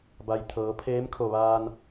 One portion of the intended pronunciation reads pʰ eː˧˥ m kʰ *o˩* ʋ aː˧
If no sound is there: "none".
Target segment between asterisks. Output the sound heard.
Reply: o˧˩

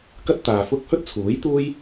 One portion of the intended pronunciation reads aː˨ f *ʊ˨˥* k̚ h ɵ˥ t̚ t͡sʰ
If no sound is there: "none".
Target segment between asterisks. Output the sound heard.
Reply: ʊ˥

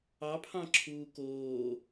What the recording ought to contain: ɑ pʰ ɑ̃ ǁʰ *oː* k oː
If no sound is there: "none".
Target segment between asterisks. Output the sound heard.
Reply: uː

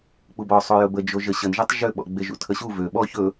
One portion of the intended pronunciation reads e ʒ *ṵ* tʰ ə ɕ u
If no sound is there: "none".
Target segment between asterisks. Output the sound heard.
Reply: ṵ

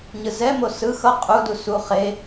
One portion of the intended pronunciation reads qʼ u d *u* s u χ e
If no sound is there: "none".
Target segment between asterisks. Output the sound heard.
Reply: u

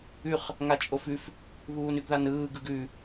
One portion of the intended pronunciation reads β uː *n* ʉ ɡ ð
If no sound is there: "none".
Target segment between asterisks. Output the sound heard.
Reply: n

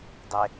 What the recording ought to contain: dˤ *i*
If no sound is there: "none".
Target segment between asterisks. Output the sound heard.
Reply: e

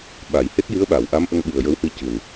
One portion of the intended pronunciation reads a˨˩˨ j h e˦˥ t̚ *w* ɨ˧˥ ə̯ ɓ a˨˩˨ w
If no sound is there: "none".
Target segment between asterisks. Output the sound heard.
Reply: j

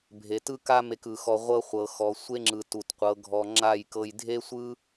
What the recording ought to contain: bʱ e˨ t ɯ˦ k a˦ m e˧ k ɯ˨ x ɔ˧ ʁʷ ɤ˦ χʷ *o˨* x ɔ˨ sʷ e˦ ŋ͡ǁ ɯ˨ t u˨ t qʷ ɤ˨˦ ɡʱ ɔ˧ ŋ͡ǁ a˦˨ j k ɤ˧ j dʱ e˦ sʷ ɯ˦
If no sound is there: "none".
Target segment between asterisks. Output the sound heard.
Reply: ɤ˨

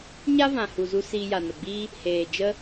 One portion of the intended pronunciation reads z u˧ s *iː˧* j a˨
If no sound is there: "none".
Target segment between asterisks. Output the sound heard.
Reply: iː˧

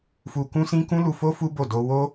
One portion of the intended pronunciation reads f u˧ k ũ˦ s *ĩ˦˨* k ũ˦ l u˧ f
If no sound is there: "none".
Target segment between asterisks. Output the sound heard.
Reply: ĩ˦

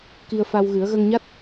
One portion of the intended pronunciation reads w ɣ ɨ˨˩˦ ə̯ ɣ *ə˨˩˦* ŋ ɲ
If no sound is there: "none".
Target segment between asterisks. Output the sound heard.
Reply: ə˧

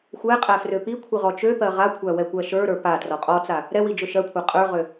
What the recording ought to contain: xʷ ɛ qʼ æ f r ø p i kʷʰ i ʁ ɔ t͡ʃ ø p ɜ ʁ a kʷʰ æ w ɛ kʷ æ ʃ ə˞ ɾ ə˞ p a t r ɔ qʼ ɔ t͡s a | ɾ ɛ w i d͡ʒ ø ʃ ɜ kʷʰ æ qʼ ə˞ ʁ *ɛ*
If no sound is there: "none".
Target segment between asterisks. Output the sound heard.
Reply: ø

